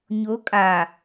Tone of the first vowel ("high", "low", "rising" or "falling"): rising